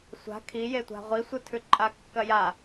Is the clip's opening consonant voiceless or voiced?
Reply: voiceless